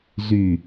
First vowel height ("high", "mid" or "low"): high